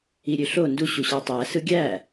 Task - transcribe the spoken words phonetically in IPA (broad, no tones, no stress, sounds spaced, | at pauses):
i ɾʲ ø ɬ o n d u ɕ u ɕ ɑ tˤ æ s ɯ ɡʲ æ